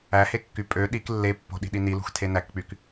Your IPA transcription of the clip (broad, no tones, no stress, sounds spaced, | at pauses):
æ h e kː y pʼ ø ɗ i k lː e pː o̤ ɗ i̤ ɗ i n i l ṳ x tʰ e n æ k k͡p y k